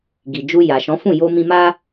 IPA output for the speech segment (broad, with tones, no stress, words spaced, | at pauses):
ɡi˨ d͡ʒu˧ ja˨ʃɔ̃˨˦fũ˦˨ jo˧mĩ˧ma˦